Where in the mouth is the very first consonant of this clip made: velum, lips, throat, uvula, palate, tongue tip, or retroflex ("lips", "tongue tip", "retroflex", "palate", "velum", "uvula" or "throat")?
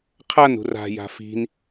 uvula